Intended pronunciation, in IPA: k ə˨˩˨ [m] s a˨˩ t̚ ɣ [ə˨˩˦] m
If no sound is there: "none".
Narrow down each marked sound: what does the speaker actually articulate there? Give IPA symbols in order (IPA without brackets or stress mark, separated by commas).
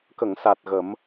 ŋ, ə˨˩˦